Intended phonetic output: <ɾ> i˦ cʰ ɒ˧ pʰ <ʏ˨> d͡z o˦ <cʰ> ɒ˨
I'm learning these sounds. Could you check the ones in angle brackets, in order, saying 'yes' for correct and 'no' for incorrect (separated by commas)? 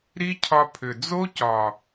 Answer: yes, yes, no